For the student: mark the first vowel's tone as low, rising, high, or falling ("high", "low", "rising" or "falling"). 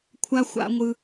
high